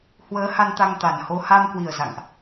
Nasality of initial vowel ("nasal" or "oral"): oral